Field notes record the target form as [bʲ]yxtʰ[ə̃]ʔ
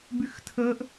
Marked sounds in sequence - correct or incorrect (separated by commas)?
incorrect, incorrect